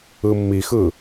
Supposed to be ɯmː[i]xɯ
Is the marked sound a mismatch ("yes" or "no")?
no